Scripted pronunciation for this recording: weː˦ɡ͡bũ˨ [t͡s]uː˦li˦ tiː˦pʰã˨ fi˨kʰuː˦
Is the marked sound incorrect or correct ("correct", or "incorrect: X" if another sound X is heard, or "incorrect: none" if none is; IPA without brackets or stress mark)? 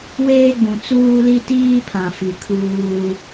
correct